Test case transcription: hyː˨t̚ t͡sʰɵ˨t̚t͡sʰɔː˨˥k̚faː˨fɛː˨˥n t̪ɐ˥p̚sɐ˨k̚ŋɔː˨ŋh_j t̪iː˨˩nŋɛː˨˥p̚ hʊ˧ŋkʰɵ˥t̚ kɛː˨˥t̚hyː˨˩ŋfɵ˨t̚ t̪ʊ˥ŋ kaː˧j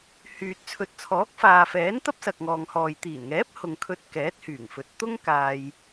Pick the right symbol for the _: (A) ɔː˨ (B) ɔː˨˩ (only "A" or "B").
A